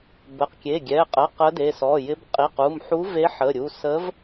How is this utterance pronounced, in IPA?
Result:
bə˩˧˩qkʲe˩˧˩ɡʲɛ˩˧˩qʼə˩˧˩ qə˧˥de˩˧˩ sɔ˩˧˩jɪ˧˥b qʼi˩˧˩qu˩˧˩mħu˧˥ ve˧˥ħə˩˧˩ɾʲu˩˧˩ sə˧˥v

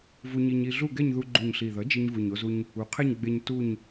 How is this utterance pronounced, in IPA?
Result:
vu˧ɲi˧ɲi˧ɮu˥˧ ɡɛ˥˧ɲðu˧ ɡ͡ǃu˨˩ɲɬi˨˩ðʌ˩˥ d͡ʒi˧ɲvɯ˨˩ɲo˧zu˧ɲ | u˩˥qʰe˥˧ɲ ɡ͡be˧ɲ tu˥˧ɲ

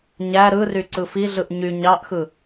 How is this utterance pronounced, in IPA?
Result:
ɲæ ɾɯry ǀɯfiɮɯʔ ɲy ɲɑʔxɯ

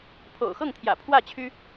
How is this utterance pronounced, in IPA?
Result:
pʰo̰˨˩ʊ̯xɤ˥˩ŋt̪ʰjä̰˨˩ pʰwä˥˩ t͡ɕʰy˥

